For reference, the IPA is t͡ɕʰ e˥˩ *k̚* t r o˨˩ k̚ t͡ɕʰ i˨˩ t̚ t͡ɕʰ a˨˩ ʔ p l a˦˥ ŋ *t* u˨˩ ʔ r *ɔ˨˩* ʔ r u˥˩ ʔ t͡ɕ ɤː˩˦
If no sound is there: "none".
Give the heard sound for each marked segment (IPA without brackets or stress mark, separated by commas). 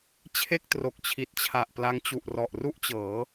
k̚, t͡ɕ, ɔ˨˩